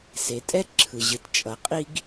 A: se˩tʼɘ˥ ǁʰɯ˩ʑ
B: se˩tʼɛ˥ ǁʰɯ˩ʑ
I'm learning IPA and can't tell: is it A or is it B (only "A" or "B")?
B